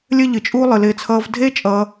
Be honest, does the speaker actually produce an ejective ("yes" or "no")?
yes